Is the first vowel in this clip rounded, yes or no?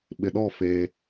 no